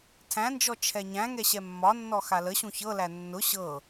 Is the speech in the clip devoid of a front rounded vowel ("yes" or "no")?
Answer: yes